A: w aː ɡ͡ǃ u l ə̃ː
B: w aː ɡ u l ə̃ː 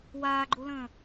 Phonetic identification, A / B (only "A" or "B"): A